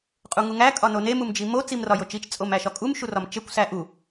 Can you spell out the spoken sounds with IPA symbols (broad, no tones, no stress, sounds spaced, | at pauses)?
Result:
qʼ u ŋ u ŋ æ kʼ ɒ n o n e m u m d͡ʒ i m o t͡s i m r ɒ j o t͡ʃ i t͡ʃ t͡sʼ o m æ ʃ ɒ kʼ u m ʃ u r ɒ m t͡ʃ e kʷ s æ ʔ u